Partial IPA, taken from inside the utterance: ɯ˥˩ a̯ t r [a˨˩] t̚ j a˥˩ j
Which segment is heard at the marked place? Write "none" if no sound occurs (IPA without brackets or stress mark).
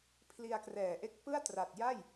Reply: a˨˩